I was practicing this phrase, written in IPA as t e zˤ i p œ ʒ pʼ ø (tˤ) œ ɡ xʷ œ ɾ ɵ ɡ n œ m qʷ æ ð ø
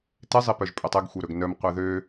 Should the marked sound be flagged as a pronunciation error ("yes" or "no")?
no